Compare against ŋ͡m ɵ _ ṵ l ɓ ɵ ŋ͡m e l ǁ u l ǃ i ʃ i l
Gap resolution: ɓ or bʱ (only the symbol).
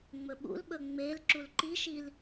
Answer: ɓ